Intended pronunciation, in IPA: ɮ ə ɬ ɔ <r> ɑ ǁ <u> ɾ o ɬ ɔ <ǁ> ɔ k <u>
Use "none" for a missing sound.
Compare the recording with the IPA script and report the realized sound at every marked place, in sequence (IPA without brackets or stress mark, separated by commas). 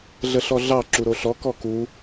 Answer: ɮ, u, k, u